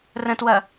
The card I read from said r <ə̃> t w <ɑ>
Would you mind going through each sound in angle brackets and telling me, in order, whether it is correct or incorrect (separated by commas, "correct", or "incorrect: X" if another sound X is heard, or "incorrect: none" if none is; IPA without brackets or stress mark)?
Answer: correct, incorrect: ɐ